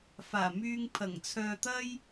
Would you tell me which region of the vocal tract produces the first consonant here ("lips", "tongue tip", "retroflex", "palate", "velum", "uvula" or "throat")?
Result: lips